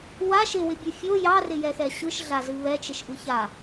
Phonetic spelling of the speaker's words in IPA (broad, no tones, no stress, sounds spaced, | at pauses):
w a ʃ ɪ w ɪ bʲ ɨ fʲ o j ɑ r ɪ j ɛ x ɛ ɕ ɯ ʃ ɮ a z ɨ β ɛ t͡ʃ ɪ ʃ ʔ ɯ ç a